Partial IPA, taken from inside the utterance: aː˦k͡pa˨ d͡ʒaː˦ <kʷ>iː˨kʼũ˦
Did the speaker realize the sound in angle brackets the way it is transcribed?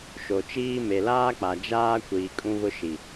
yes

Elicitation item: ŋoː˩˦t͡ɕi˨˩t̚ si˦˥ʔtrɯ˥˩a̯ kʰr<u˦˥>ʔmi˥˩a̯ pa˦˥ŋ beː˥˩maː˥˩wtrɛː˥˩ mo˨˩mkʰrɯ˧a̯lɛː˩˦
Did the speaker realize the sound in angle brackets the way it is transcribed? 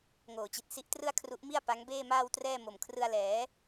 yes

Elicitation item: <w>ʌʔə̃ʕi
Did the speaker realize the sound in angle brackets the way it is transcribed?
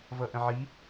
no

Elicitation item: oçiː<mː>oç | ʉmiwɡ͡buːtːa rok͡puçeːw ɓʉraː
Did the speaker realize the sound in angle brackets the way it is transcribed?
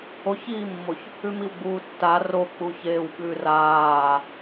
yes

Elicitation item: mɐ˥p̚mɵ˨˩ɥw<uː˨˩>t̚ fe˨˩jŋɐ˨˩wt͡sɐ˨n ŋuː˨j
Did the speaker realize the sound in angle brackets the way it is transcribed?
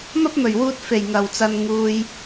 no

